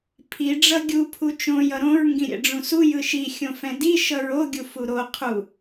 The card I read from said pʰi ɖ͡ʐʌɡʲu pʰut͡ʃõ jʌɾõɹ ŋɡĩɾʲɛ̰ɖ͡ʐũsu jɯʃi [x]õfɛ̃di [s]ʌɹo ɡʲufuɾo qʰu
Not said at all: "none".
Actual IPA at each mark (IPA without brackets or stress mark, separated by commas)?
xʲ, ʃ